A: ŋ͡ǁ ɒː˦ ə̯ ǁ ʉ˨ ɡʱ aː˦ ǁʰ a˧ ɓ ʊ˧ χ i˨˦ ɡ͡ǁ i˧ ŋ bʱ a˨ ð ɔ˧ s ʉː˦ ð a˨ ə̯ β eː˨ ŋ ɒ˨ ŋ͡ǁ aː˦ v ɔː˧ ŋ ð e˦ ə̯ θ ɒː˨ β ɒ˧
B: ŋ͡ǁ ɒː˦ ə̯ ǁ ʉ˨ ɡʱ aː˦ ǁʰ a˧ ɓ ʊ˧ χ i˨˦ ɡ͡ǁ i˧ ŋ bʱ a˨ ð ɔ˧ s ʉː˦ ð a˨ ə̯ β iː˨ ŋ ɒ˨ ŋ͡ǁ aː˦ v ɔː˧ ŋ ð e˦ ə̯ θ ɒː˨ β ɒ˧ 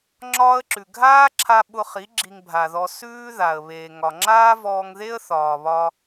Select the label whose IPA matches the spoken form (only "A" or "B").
A